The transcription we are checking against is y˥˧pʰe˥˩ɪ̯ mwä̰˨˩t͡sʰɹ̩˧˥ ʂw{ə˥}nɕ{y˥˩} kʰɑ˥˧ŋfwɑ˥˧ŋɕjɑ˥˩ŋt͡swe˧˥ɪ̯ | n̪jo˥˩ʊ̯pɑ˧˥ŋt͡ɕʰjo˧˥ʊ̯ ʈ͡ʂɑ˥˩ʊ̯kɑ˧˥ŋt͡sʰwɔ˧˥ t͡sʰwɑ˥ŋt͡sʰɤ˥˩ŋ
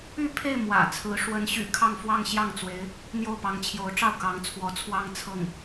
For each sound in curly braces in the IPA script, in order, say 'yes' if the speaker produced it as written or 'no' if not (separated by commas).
no, no